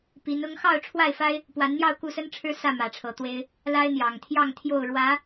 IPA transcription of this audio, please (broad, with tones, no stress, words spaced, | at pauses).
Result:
pi˨˦n ʊ˨˦ŋxɑ˥˨ʊ̯ ʈ͡ʂʰwa˥˨ɪ̯fa˦ɪ̯ | pwa˨˦nn̪jɑ˥˨ʊ̯ ku˥˨sə˦nʈ͡ʂʰɻ̩˦ sä˥˨mä˨˩ʈ͡ʂʰɤ˨˦t̪we˦ɪ̯ | la˦ɪ̯ n̪jɑ˨˩ŋt̪ʰjɑ˥˨ŋt̪ʰjo˥˨ʊ̯ ɻwä˨˦